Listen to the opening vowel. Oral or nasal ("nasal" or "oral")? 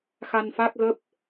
oral